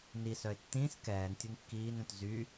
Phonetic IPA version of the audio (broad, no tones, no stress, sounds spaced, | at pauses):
n i s œ ɪ̯ tː ĩː s k ɛː n tʲ u n kː iː n œ̃ t z y